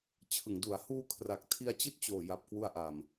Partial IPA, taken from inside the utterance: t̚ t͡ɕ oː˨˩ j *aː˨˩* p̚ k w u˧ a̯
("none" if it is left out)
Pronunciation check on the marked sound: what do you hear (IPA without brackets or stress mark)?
a˨˩